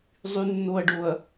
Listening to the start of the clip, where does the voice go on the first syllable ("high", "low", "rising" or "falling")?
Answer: low